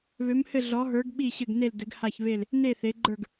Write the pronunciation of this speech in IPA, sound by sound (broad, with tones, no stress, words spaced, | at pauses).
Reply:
βø˨˥mhɘ˥˨ ɮɔ˨˥ɦə˞˨˥ɡ ɓi˥˨ɕɘ˥˨ɡ ne˥˨l dɘ˨˥ɡha˥˨ç βe˥˨l | ne˥˨θe˨˥ɡ͡ǃə˞˥˨ɡ